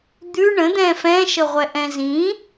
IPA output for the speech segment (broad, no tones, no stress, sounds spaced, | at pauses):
d̪ ʉ ɳ ə̃ d̪ ɛ̃ f ɛ̃ ʃ ə ʁʷ ɛ ʔ ɛ̃ z ĩ